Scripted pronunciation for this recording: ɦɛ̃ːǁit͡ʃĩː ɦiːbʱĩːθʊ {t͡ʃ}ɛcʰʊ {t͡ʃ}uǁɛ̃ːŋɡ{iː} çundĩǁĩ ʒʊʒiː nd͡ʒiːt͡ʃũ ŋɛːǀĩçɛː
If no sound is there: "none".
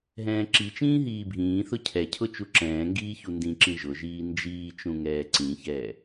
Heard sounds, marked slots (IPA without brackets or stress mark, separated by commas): cʰ, t͡ʃ, iː